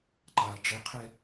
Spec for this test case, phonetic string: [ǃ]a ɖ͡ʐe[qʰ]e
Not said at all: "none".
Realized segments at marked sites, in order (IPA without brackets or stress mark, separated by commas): ǃ, qʰ